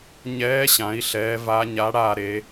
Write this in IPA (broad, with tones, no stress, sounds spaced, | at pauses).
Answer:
ɲ ɛː˨˥ ɕ ã˩˧ i̯ ɬ ɛː˩˧ v a˨˥ ɲ a˨˥ ɽ aː˦˨ ɾ e˩˧